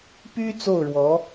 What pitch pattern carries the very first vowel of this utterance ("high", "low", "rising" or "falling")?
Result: high